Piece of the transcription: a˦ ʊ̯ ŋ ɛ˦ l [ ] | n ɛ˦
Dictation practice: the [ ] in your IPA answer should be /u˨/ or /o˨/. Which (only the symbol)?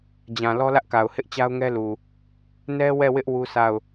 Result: u˨